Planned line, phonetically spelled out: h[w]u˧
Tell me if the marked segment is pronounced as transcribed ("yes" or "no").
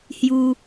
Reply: no